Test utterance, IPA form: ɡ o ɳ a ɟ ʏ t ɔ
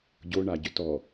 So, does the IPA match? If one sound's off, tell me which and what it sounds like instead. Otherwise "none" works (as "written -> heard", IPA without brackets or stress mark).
ɡ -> ɟ